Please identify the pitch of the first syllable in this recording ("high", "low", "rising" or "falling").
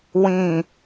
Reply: low